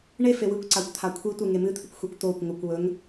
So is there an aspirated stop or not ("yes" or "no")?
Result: yes